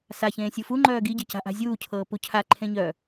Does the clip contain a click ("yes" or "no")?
yes